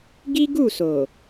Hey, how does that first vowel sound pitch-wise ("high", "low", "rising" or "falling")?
high